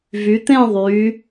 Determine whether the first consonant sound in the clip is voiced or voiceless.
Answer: voiced